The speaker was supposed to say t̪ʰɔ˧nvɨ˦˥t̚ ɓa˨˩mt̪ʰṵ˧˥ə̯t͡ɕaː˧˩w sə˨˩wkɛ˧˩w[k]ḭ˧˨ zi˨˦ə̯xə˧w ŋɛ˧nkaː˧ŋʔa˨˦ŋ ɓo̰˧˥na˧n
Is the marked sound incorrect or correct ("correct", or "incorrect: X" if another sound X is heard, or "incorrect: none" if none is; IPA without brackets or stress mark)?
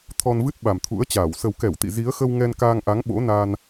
incorrect: t̪